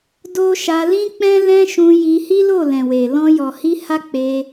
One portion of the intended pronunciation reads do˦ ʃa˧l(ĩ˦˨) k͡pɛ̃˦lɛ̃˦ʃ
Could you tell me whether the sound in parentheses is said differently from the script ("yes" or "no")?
yes